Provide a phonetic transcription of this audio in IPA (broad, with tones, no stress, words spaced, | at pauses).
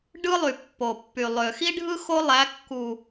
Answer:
ɖɯ˦lˠy˨ pːo˨pːy˨ lˠø˨ xi˦ɖʱɯ˦ xo˦lˠæ˨˦ kːu˨